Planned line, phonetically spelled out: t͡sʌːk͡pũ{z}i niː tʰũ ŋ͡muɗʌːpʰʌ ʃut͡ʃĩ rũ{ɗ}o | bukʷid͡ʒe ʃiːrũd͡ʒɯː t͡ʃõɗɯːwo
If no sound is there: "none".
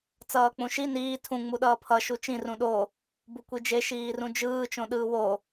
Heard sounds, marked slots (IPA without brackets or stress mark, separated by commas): ʃ, ɗ